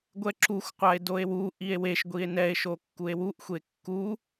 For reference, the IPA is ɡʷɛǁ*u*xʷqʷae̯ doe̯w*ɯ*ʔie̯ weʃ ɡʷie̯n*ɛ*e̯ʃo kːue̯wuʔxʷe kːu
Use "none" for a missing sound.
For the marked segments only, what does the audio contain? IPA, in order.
u, u, ɛ

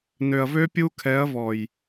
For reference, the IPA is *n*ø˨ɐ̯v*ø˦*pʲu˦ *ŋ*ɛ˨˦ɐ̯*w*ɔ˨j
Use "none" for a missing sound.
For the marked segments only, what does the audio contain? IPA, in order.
n, ø˦, kʰ, v

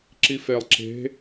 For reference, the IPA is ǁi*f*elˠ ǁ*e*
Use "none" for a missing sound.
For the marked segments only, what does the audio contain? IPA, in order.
f, e̤

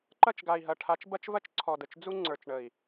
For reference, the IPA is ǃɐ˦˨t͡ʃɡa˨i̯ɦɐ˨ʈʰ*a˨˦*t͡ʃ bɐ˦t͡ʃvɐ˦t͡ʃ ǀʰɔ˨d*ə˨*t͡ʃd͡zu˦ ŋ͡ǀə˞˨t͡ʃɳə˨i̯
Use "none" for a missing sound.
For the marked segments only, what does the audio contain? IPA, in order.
a˨˦, ə˨

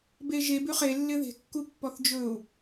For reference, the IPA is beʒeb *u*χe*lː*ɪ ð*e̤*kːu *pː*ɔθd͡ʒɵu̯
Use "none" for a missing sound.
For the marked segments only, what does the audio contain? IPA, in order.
ʉ, lː, e̤, pː

